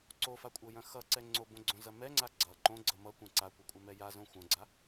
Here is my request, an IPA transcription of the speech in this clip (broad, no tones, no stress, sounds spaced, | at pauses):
ǀ o f a kʷʼ ɤ j ɐ̃ x ʌ ǀ ɛ ŋ͡ǀ o b õ ɡ͡ǀ õ z ɐ m ɛ ŋ͡ǀ a ɡ͡ǀ ʌ ǃ õ ɡ͡ǀ ʌ m ʌ kʷ ɛ̃ ǀ a kʷ ɐ kʷʼ ɐ m ɛ j a z õ xʷ ɐ̃ ɡ͡ǀ a